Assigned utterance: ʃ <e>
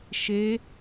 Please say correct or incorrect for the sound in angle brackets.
correct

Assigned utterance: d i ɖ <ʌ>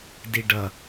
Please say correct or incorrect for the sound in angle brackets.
correct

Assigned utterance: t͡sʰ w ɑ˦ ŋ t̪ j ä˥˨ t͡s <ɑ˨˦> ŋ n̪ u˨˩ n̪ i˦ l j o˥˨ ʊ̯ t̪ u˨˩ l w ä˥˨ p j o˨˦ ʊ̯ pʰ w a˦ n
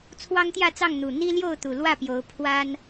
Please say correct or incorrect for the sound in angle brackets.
incorrect: ɑ˥˨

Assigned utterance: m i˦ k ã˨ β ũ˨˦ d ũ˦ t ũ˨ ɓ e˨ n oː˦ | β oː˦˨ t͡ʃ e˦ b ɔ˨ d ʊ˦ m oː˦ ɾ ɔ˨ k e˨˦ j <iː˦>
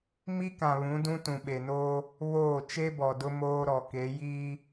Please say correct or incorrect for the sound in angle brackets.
correct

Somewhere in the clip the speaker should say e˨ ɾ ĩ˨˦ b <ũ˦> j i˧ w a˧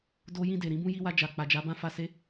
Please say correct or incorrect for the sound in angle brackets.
correct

